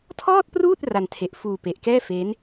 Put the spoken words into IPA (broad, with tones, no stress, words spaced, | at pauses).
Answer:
tʰɔː˥˩t̚pruː˥˩t̚ ra˧ntʰe˨˩ʔ fuː˧pe˨˩ʔkɛː˥˩ fe˦˥n